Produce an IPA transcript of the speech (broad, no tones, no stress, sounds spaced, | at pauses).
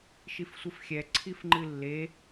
ʃ i f sʷ ɨ f xʲ ɛ ǀʰ i f ŋ͡ǃ ɨ lː e